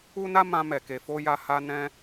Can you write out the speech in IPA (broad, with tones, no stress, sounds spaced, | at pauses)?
u˦ n a˦ m ã˧ m ɛ˨ k e˧ f o˦ j a˧ h a˧ n ɛ̃˧